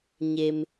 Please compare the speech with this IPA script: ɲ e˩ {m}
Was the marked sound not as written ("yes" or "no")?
no